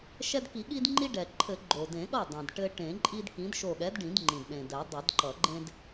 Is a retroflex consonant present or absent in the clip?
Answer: present